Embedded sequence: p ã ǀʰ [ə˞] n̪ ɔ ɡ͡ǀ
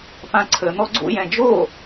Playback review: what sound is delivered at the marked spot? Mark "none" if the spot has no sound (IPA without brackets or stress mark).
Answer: ə